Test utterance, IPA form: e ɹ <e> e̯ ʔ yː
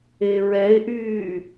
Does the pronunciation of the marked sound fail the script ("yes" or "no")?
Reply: yes